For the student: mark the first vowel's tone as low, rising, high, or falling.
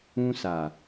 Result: high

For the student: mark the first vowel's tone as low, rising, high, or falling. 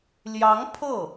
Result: rising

